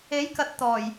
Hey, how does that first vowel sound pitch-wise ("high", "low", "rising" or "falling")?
rising